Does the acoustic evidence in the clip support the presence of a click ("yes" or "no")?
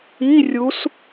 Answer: no